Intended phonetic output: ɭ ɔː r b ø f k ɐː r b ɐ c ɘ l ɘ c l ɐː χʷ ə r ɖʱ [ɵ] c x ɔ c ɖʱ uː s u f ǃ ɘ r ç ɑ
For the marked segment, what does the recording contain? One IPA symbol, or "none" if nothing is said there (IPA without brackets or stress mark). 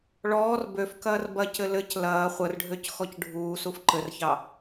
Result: ø